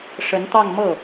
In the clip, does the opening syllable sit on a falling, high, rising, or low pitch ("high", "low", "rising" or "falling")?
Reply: rising